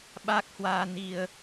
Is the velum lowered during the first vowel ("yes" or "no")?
no